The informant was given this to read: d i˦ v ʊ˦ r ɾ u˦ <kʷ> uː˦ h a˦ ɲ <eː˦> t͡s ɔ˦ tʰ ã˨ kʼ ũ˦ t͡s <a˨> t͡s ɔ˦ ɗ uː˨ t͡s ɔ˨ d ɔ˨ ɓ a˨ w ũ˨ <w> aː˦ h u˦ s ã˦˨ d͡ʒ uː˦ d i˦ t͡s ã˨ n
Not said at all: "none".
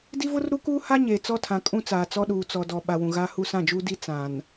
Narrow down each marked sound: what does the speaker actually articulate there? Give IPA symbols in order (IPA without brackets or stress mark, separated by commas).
k, eː˨, aː˨, ɣ